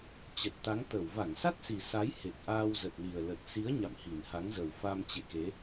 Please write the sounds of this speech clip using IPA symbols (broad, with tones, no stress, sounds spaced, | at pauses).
t͡ɕ ə˨˩ t̚ t̪ a˨˦ ŋ t̪ ə˧˩ w v a˧˩ ŋ s a˦˥ t̚ s i˨˩ s a˨˦ j h e˨˩ k̚ ʔ aː˧ w z ə˨˩ t̚ l i˨˩ ə̯ l ə˨˩ t̚ s i˨˦ ə̯ ɲ a̰˧˨ m h i˨˩ n h a˨˦ ŋ z ə˨˩ w f a˧ m t͡ɕ ḛ˧˨ k e˨˦